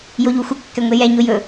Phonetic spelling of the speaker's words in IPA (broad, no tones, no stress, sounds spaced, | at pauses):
j o ʎ u xʷ ə kː ɛ ŋʷ e j ɛ ɲ o j ɵ